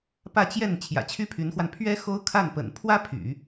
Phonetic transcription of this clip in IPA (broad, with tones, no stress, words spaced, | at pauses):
pä˥˧t͡ɕjɛ˥˩n t͡ɕʰjä̰˨˩t͡ɕʰy˥pʰy˧˥nxwa˧n pʰɥɛ˥ xo˥ʊ̯kʰa˥˩npə̰˨˩n pʰwä˥ pʰy̰˨˩˦